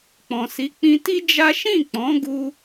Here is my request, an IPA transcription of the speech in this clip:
k͡p ɔ̃˨ s i˨˦ k͡p ĩ˧ t i˦ d͡ʒ a˦ ʃ ĩ˦˨ k͡p ɔ̃˨˦ ɡ u˧

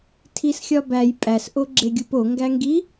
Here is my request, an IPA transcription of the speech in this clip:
tʰ i s xʲ ɒ b æ j pʼ æ s ʔ o ɡ͡ǁ e ɡʲ u p o ŋ ɡ æ ŋ ɡ i

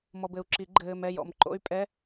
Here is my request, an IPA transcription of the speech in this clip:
m ɔ˨ b ɘ˨ u̯ ǁ i˨˩˦ ɡ͡ǃ ɘː˨ m ɛ˥˨ j ɔ̰˥˨ m ǃ o̰˦˥ y̯ pʼ ɛ˧˥˧

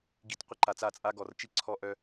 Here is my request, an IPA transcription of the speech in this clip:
ɡ i˧ t qʷ ə˦ ǃ a˨ t͡s a˦˨ t͡sʼ a˦ ɡ ɔ˨ r t͡ʃ i˦ ǀʰ ɔ˦ ʔ œ˦

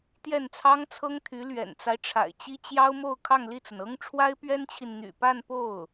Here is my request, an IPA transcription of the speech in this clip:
t̪ j ɛ˥˩ n t͡sʰ ɑ˥ ŋ t͡sʰ ɤ˥ ŋ t̪ʰ y˧˥ l ɥ ɛ̰˨˩ n t͡s a˦ ɪ̯ ʈ͡ʂʰ a̰˨˩ ɪ̯ t͡ɕ i˥ t͡ɕ j ɑ˥ ʊ̯ m o˥˧ ʊ̯ kʰ ɑ˥˧ ŋ l i˥˩ t͡s ə˩ n ɤ˥ ŋ ʈ͡ʂʰ w a˥ ɪ̯ p ɥ ɛ˥ n t͡ɕʰ i˨ n n̪ y̰˨˩ p a˥˧ n p o˥˩ ʊ̯

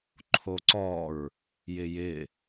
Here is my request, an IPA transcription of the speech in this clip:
ǃʰ o ǀ ɔ ɹ | j ɪ j ɪ

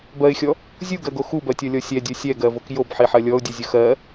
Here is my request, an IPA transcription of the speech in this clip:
b ɜ ɪ̯ xʲ ɔ | zʲ u ɡ ɜ ɡ o x u b ɜ tʲ ɔ lʲ ɔ sʲ ɛ dʲ o sʲ ɛ ɡ ɜ v o k j o b ħ i ħ ɜ lʲ ɔ ʊ̯ dʲ u zʲ ʊ x ɜ

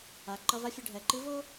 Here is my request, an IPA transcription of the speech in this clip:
a˩˧ ǃ ʌ˧ v a˧˥ fʲ ɯ˩˧ ɖʱ ɛ˩˧ ǃ i˧˥ v o˥

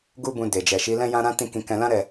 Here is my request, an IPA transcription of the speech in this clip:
ɡ u˦ b ũ˧ d e˨ d͡ʒ ɛ˨ ʃ i˨˦ l ɛ̃˦ j ã˦ ɾ ã˦ t ĩ˦˨ k ĩ˧ k ɛ̃˧ l ã˦ ɾ ɛ˦˨

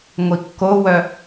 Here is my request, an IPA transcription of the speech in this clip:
ŋʷ i kː o w œ

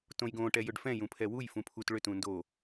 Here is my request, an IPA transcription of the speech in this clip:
t õ j ɡ õ ʈ ɛ j ʏ ɖ f ɛ̃ j ũ pʰ ɛ w u j f ũ pʰ u t ɭ ʏ t ũ n d o

